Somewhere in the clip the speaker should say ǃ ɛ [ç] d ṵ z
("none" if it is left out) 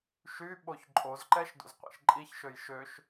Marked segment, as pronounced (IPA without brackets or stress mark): ʃ